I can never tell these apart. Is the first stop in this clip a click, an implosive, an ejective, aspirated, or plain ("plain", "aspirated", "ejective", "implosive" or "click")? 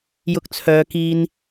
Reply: plain